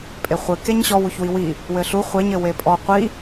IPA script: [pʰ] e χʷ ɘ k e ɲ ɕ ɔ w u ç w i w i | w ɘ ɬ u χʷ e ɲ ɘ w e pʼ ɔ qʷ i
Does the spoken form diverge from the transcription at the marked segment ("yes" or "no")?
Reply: yes